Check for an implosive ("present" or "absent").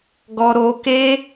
absent